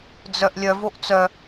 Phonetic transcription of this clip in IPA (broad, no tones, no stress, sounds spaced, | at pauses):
d͡z œ ʔ lʲ œ v o ʔ t͡s œ